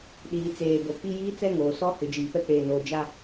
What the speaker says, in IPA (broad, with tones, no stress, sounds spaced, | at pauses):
ɗ iː˨ t͡s eː˨ b o˨ k͡p i˦ j iː˦ t͡s ɛ˦ ŋ oː˨ s ɔ˦ h ɪ˨ d͡ʒ iː˨ p ɛ˦ k͡p eː˦ n oː˦ d͡ʒ a˦